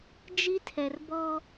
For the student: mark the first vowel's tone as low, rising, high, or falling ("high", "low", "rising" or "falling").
high